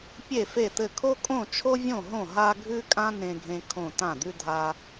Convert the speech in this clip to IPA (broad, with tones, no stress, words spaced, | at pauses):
pʲe˥˨fe˥˨t̪ɘ˥˨ kʰo˥kʼõ˥˨t͡ʃʰo˥vʲõ˥˨ ɦõ˥˨ɦa˥ ɡʱʉ˥kʼã˥ nẽ˥ɡʱẽ˥kʰõ˥˨ tã˥˨d̪ʉ˥dʱa˥